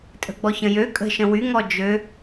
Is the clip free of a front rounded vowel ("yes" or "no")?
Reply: no